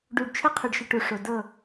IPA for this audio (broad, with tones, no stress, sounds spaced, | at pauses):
ɖ u˨ ɖ t͡ʃʰ ə˦ qʰ ə˨ ɖ ʃ ə˨ ʈ u˨ ʂ o˨ d ɤ˦˨